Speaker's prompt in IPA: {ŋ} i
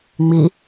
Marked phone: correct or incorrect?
incorrect